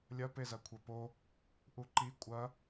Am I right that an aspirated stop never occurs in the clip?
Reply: no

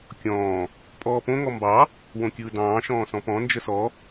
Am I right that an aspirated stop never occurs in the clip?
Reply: yes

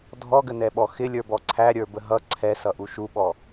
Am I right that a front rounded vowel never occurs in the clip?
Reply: yes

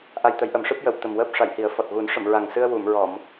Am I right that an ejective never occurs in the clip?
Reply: yes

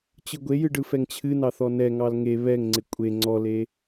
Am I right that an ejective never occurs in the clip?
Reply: no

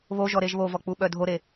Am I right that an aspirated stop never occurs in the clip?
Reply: yes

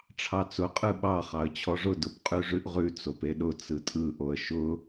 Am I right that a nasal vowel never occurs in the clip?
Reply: yes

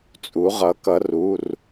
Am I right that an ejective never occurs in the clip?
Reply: no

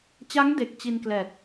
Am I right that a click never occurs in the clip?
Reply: yes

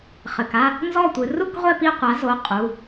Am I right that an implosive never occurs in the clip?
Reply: yes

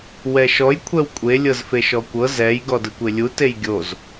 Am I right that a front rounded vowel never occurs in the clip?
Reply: yes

